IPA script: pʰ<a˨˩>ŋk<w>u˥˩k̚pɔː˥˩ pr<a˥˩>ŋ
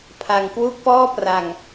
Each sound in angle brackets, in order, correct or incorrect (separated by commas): incorrect, correct, incorrect